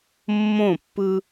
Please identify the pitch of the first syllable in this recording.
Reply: falling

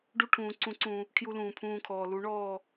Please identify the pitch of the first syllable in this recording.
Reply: high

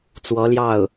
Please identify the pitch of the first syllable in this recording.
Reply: rising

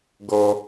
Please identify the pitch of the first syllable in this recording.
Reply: low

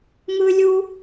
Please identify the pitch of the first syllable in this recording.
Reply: high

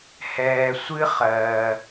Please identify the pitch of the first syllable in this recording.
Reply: low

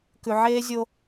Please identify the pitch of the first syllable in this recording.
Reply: low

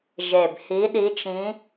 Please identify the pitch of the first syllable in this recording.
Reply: low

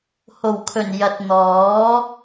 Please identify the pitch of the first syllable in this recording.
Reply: low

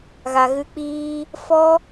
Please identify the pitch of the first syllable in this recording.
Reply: low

